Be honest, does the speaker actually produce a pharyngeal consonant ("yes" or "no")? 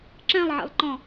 yes